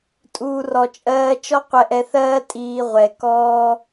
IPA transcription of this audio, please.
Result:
tʼ uː˨ r ɔ˨ t͡ʃʼ ɜː˧ t͡ʃ ɔ˦ qʷ ɛ˧ ʔ ɛ˧ θ ɜː˦ tʼ iː˧ ʁʷ ɛ˨ k ɔː˦

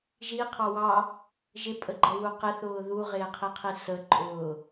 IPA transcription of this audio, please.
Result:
ʒ i qʰ ɑ w ɑ | ʒ ɪ pʼ ə ɡ͡ǃ ɛ w u q ɪ θ ʊː ð u ʁ ɪː qʰ i qʰ i s ə ǃʼ ʊː

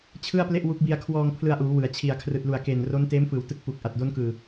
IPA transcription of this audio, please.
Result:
t͡ɕʰ ɯ˥˩ a̯ p l e˥˩ ʔ w u˦˥ k̚ b i˧ a̯ kʰ w ɔː˧ ŋ pʰ l ɯ˧ a̯ ʔ uː˩˦ w ɯ˩˦ a̯ t͡ɕʰ i˨˩ a̯ kʰ r ɯː˨˩ t̚ l u˨˩ a̯ k eː˨˩ n r o˦˥ n t eː˦˥ m f ɯː˩˦ w t ɯ˦˥ k̚ f u˨˩ k̚ ʔ a˨˩ t̚ d o˦˥ n k ɯː˨˩

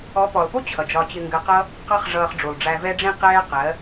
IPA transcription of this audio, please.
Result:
ɔ˨˦ p ɔ˨ lˠ p u˦ t͡ɕʰ ʌ˨ d͡ʒ ɒ˧ t͡ɕ ɪ˧ ŋ ɡ ɜ˧ q ʌ˦ | q ɑ˦ χ ʐ ʌː˧ χ ɖ͡ʐ u˨ lˠ ɖ͡ʐ æ˧ v ɛ˧ ɖ͡ʐ ĩ˧ q ɛː˦ q ɜ˨˦

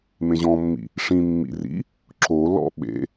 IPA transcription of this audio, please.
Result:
m ẽ ʑ ɔ̃ mː ḭ | ʂ ĩ mː ḭ r ḭ | ǁ o l ɔ̰ ɓ ḛ

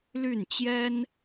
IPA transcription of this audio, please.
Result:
l y˥˩ n t͡ɕ j ɛ˥ n

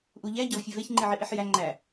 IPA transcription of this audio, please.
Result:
ʔ u ʎ æ ɟ ɒ v fʲ e v e ç ŋ͡ǃ i ʕ i ʔ i ħ j æ ŋ͡ǃ æ

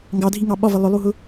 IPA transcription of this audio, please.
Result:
ŋ ɡ ɑ dʱ i ŋ ɑ ɓ ɒ v ə lˠ ʊ lˠ u ɦ ʊ

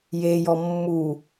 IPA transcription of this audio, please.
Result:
j e j ɔ mː u

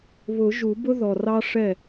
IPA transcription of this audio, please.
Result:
β ʊ˨˩˦ ʒ u˨˩˦ b ʊ˦ ð ɔ˨˩ r ɑ˦ ʂ ɛ˥˨

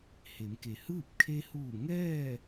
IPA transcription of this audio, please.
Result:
h e˩˧ m k e˩ h ɯː˥˨ p̚ kʰ e˧ h uː˧˩ ŋ ɛː˥˨

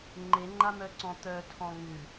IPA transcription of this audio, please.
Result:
ŋ͡ǃ e ŋ͡ǃ a m œ ǀ ɔ̃ t̪ œ tʰ ɔ̃ ŋ ʉ

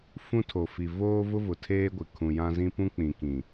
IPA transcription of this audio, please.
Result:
f ũ˦ tʰ o˨ f i˨ v oː˦ v ʊ˦ v ʊ˨ tʰ eː˦ ɡʷ ɪ˨ kʰ ũ˨ j ã˦ z ĩ˦ p ũ˦ k͡p ĩ˨ k ĩ˨

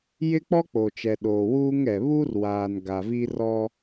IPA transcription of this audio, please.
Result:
j ɪ˦ k͡p ɔ˦ k͡p o˨ t͡ʃ ɛ˨ ɗ oː˨ w uː˦ ŋ ɛ˨ β u˦ r w aː˨ n ɡ a˨ v i˦ r ɔ˦

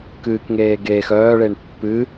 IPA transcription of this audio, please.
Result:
k ɨː k ŋ eː ɡ eː x œː ɭ e ɳ pː ɨ

